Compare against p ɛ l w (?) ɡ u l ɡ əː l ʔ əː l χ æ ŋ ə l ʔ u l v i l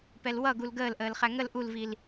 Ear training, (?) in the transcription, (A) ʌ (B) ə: A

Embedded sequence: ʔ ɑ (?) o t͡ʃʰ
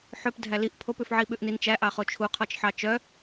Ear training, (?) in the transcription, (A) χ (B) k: A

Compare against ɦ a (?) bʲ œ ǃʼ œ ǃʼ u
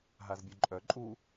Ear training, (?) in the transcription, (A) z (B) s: A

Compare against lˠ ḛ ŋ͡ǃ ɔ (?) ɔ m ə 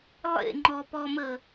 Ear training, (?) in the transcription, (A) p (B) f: A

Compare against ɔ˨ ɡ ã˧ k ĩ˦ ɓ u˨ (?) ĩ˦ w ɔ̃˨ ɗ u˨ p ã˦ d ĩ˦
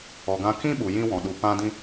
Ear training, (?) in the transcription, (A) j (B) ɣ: A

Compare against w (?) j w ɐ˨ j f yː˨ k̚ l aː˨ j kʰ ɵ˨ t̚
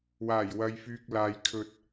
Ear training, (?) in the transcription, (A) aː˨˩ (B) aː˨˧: A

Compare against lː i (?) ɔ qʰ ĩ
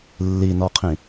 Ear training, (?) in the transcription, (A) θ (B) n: B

